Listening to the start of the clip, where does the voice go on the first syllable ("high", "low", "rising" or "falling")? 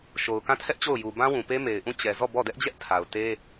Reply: low